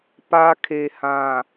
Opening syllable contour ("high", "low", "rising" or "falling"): high